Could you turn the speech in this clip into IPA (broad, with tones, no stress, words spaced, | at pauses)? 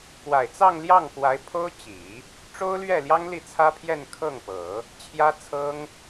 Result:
kwa˨˩ɪ̯t͡sɑ˥˧ŋljɑ˥˩ŋ kwa˧˥ɪ̯ pʰo˥ʊ̯t͡ɕi˨˩˦ | ʈ͡ʂo˥ʊ̯lɥɛ˥˩ljɑ˥ŋ li˥˩t͡sʰä˥pʰjɛ˥˧n kʰɤ˥˩ŋpɤ˨˩˦ | t͡ɕʰjä˥t͡sʰɤ˥ŋ